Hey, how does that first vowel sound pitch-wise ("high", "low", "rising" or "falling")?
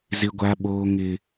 high